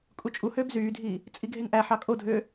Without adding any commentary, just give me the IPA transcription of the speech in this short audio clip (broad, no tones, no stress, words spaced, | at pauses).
kʼut͡ʃʼuhøːb zyːdʱiː | t͡sʼiɡʱeŋʔæħɑ kʼodʱøː